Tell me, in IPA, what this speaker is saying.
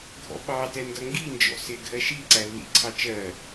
ɡʱ ɔ̰ ɓ ɑ t ɛ n d ʌ ŋ ɡ i n d͡ʒ ɔ̰ s ɪ ɡʱ ɜ ʃ i ǀ æ lː ḭ ǀʰ ɑ t͡ʃ ɜ

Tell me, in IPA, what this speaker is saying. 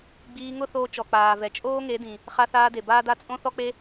ɡ͡b iː˧ ŋ ʊ˦ θ oː˧ t͡ʃ ɔ˨ k͡p aː˨ v ɛ˨ t͡ʃʼ oː˦ ŋ e˨˦ d ĩ˨ | χ a˧ θ aː˧ d e˨ b aː˦ d a˦ t͡sʼ õ˦ θ ɔ˦ k͡p e˦

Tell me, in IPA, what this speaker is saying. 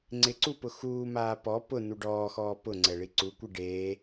ŋ͡ǀ ɪ ǀ u p ʊ x uː m aː p ɔ p ʊ n u ɖ ɔː x ɔː p ʊ ŋ͡ǀ ɛ ɭ i ǀ u kʷ i ɖ e

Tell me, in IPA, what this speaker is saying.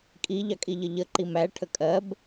kʼ i ʎ ɑ kʼ i ʎ ə ʎ ə ǃ i m æ ʈʰ ə kʼ ɜ b

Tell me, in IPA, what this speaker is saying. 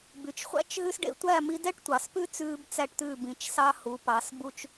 b y˨ t͡ʃ χʷ æ̰˦ t͡ʃ ɦ ʉ˦ s ɖ ḛ˧ tʷ æ˦˨ m i˧ d ɛ˦ ʈ tʷ ɑ˨ s p ʉ˦ t͡s ʉː˦ b t͡s æ˦ ʈ t̪ ʉ˦˨ b ĩ˨ t͡ʃ s ɑ˦ h u˨˦ p ɑ˨˦ s b u˦ t͡ʃ

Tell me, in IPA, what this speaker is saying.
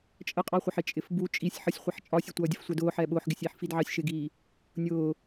t͡ʃʼ ə qʼ ɑ χʷ ə ħ ɪ t͡ʃʼ ɪ f b u t͡ʃʼ i sʲ ħ ʌ sʲ χʷ i ħ t͡ʃʼ ɒ sʲ ə tʷ ʌː dʲ ə f sʷ ɛ d ʊː ħ ɛː ɓ ʊː ħ ɡ ɪ sʲ iː ħ f i d ʕ ɑ sʲ ʃ ɪ ɡ iː | nʲ ʊː

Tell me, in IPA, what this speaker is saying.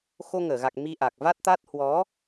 x o˧ ŋ əː˧˩ ɣ a˨˩ k̚ m i˧ ʔ a˨˩ k̚ v a˦˥ t̚ t̪ a˦˥ t̚ h w ɔ˨˦

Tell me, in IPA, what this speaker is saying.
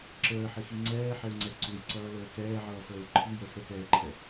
ǁ əː ħ ɪ x i ŋ͡ǀ ɛː ħ ɛ u̯ ŋ͡ǀ ɛ ǀ u j ǀ ʌː l əː k ɛː ʕ ʌː f əː u̯ ǃʰ i j ə f ə k ɛː ǃʰ ɛ

